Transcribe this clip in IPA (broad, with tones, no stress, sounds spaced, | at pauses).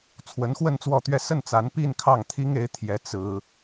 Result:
t͡sʰ w ə˧˥ n x w ə˥˧ n t͡s w ɔ˥˧ t̪ ɥ ɛ˥˧ s ə˥˩ n t͡s a˧˥ n p i˥˧ n kʰ ɑ˥˩ ŋ t̪ʰ i˥ ŋ e˧˥ ɪ̯ t̪ʰ j ɛ˧˥ t͡s ɹ̩˥